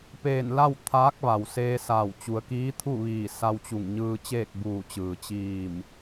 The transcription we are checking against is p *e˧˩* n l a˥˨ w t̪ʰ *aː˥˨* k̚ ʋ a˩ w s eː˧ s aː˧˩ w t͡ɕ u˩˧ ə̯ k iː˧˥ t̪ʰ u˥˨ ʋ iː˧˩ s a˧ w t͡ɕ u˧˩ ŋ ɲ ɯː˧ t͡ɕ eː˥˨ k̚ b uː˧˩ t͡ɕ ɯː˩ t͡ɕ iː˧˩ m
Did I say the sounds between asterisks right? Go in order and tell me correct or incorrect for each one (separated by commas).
incorrect, incorrect